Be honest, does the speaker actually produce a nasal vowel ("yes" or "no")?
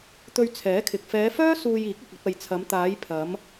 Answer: no